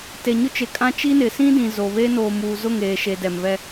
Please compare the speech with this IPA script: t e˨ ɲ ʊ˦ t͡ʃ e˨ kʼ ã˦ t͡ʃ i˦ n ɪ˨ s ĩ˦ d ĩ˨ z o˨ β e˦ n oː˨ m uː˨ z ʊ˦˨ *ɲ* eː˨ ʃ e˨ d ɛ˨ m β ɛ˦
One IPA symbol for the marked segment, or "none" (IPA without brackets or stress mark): ŋ